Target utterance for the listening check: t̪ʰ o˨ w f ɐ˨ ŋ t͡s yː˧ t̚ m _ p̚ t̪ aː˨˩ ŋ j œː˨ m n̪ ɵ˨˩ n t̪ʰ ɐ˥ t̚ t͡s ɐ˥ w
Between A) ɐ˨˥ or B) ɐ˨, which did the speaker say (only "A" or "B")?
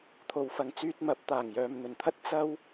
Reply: A